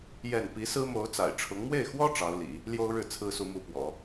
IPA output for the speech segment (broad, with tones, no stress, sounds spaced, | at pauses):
j ɛ˥˩ n p i˧˥ s ɹ̩˥ m o˧˥ ʊ̯ t͡s a̰˨˩ ɪ̯ ʈ͡ʂʰ ʊ˧˥ ŋ m w e˥˩ ɪ̯ x w ɔ˥ ʈ͡ʂ ɑ˧˥ ʊ̯ l ḭ˨˩˦ | l j o˥ ʊ̯ ɻ ɻ̩˥˩ t͡sʰ ɹ̩˥ s u˧˥ m u˧˥ p w ɔ̰˨˩˦